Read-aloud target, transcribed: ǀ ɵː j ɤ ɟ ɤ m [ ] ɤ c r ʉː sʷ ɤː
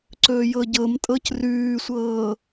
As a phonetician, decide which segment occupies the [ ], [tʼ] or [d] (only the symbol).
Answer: tʼ